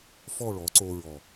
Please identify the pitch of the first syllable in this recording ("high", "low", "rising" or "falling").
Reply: falling